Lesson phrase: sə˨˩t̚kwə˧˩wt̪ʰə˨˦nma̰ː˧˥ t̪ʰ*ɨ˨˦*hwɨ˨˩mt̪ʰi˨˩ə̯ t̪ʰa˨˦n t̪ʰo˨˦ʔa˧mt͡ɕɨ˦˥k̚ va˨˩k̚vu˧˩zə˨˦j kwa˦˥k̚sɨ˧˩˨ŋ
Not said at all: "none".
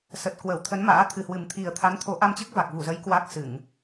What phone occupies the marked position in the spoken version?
ɨ˨˩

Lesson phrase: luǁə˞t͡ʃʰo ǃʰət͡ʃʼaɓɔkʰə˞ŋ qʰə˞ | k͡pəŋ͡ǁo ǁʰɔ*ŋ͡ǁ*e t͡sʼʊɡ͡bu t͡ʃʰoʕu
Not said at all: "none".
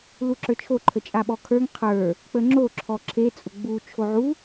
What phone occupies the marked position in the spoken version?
ǁʰ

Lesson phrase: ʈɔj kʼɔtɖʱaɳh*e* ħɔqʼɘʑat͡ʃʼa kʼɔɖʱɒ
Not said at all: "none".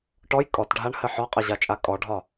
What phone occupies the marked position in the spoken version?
ɘ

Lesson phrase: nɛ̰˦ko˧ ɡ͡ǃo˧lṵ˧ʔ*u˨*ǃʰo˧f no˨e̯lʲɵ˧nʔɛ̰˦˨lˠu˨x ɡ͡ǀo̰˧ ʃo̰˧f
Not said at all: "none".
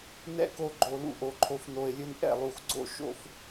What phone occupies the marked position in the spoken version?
o˨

